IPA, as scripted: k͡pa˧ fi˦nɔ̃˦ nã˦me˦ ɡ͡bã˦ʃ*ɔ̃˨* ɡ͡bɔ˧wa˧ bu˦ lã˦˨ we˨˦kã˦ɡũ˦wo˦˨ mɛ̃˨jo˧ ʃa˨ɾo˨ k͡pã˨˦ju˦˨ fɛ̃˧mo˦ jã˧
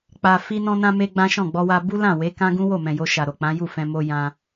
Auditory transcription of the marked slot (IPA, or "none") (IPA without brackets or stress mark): ɔ̃˦˨